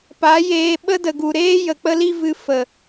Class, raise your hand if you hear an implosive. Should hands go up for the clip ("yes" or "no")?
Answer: yes